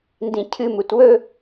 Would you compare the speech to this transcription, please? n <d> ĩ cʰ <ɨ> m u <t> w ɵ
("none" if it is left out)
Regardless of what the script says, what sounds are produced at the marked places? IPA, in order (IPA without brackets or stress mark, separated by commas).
d, ɨ, t